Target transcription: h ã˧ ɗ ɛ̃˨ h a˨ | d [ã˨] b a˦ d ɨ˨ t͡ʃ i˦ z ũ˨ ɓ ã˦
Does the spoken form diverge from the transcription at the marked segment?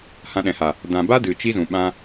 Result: no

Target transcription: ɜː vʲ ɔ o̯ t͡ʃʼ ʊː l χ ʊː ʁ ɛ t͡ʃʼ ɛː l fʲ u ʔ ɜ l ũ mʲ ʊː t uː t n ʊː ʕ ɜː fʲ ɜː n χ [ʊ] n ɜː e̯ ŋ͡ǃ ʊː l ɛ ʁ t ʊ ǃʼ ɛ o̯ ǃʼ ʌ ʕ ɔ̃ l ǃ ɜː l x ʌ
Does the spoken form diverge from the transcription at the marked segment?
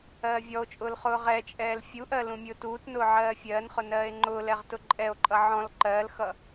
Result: no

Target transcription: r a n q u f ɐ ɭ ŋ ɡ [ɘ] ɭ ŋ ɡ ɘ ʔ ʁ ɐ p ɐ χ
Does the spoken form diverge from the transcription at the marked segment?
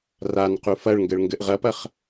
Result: no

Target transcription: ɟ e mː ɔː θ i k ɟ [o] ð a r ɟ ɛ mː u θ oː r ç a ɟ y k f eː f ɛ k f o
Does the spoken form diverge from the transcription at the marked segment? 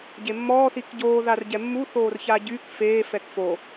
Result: yes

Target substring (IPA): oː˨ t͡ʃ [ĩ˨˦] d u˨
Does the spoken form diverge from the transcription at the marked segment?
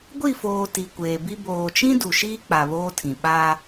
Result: yes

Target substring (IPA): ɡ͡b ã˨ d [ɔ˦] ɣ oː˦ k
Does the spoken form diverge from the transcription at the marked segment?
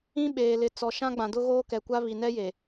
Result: yes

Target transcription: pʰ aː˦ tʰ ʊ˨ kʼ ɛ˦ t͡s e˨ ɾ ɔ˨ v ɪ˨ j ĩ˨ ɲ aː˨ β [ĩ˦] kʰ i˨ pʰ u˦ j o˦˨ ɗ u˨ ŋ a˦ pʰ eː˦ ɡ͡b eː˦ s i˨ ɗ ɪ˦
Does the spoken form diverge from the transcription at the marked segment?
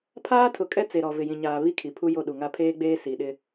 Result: yes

